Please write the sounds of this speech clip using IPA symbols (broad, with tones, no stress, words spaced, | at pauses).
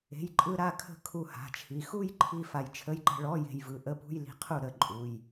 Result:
e̤˩˧˩jǃʼɯ˧ ɾa˥˧kʰə̤˥˩ kʰu˧ha̤˩˧˩t͡ʃʰi˩˧˩ xu˥˧j ǃʰi˥˧ fa˧jt͡ʃʰə˧˥˧jǃə̤˥˧ ɭɔ˧˥˧je̤˧jvɯ˩˧˩ ʔə˧˥˧pṳ˧˥˧jli̤˧qʰu˥˩ ɾə˥˩ ǃʼu˩˧˩j